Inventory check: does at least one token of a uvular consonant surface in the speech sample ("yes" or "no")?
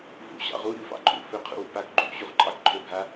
yes